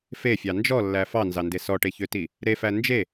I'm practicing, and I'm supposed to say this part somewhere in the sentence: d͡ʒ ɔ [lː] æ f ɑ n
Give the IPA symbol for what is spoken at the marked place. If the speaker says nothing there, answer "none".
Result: lː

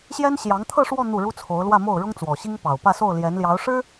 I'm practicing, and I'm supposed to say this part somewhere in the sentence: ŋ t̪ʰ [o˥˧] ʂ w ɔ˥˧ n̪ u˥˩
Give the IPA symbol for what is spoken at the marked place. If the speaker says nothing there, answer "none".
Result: ɤ˥˧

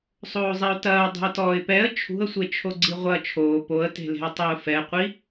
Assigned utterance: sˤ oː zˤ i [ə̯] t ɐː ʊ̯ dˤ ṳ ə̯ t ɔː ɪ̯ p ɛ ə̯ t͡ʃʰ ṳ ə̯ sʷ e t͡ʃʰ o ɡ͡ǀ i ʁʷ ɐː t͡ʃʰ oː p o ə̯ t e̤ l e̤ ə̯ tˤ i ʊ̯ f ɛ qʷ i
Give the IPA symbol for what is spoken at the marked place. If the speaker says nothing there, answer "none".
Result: ʊ̯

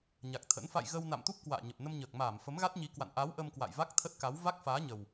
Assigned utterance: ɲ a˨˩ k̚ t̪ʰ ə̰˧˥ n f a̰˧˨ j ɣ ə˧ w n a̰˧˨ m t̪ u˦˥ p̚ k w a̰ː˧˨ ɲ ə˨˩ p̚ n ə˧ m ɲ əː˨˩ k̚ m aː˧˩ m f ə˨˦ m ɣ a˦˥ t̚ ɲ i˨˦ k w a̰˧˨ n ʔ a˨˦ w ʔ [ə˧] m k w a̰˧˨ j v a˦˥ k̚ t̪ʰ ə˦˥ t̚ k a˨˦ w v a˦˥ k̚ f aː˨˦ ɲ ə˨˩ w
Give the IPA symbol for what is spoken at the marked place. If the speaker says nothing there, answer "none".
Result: ə˧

